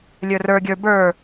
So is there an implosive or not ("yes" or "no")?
no